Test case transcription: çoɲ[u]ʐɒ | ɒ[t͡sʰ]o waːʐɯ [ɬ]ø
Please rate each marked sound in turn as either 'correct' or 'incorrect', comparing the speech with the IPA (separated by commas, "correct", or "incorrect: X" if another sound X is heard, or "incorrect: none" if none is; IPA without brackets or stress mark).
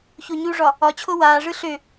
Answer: correct, incorrect: t͡ɕʰ, correct